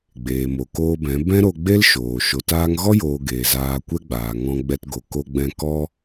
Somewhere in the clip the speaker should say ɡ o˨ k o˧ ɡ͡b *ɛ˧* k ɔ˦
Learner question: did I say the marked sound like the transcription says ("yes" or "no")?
no